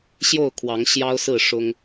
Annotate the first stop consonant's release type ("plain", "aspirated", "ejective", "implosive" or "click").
aspirated